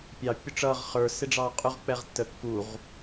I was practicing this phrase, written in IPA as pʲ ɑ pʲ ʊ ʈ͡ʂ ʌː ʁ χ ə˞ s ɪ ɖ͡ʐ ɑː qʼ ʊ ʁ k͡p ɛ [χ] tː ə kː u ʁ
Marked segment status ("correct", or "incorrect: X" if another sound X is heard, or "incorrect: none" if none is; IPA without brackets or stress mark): incorrect: ʁ